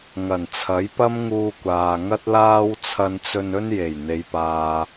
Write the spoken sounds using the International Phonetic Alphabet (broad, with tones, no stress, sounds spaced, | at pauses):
ŋ ɐ˨˩ n t͡sʰ ɐ˨˥ j p ɐ˥ m ŋ uː˧ kʷ aː˨ ŋ ɐ˥ t̚ l aː˥ w t͡sʰ ɐ˧ n t͡s ɵ˧ n ɵ˥ n j e˨˩ j n̪ e˨˧ j p aː˨